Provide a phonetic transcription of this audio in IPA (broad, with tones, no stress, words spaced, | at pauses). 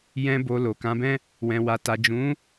jɛ̃˧ bo˨ lo˨kã˨˦bɛ̃˦ | wɛ̃˨wa˨ ta˨d͡ʒũ˨˦